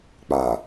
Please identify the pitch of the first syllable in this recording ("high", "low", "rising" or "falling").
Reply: low